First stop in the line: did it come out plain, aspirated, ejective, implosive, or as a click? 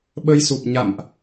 implosive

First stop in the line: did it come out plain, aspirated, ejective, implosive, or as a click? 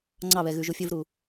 click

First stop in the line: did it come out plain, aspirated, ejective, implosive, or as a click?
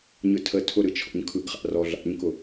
aspirated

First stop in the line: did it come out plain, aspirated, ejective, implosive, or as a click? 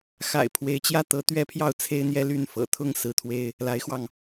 aspirated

